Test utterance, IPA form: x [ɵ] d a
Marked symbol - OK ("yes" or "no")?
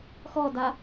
no